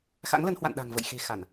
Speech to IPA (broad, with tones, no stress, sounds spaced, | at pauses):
x a̰˧˥ ŋ l ə˨˦ n h w a̰˧˨ n ɗ a̤˨˩ ŋ v ə̰˧˨ j x e̤˨˩ x a˧˩˨ n